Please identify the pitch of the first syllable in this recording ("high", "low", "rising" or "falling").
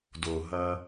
low